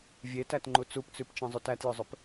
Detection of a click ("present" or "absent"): present